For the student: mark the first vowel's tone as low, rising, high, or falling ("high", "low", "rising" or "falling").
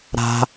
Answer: high